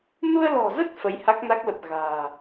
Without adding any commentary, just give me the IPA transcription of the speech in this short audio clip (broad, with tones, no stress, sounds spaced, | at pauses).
n u˧ ə̯ l ɔ̤˨˩ z ə˦˥ t̚ f ə˨˦ j h a˦˥ k̚ n a˦˥ k̚ l ə˨˩ p̚ ɣ a̤ː˨˩